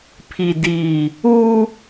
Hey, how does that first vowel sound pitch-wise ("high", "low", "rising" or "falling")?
low